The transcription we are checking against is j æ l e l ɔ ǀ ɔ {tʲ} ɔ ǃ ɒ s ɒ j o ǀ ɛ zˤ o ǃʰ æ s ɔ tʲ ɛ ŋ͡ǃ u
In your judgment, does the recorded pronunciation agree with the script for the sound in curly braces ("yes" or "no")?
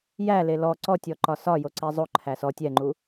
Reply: yes